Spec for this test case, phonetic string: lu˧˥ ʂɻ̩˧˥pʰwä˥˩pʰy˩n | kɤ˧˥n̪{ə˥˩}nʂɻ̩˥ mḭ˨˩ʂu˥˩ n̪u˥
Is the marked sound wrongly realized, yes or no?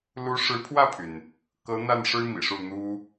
yes